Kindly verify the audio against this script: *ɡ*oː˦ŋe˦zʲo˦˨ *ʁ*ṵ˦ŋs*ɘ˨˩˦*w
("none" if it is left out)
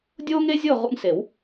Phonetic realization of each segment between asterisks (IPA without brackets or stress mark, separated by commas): dʲ, ʁ, e˨˩˦